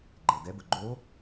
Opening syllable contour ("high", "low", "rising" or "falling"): low